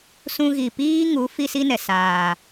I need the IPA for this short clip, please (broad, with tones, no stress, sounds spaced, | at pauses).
s ũ˦ ɣ i˨ p iː˦ ŋ u˨˦ f i˦ s i˦ n ɛ˨ s aː˨